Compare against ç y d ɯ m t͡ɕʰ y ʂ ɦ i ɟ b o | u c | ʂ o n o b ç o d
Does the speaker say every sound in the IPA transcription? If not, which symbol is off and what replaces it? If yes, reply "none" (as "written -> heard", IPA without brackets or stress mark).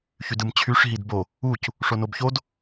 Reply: ɟ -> d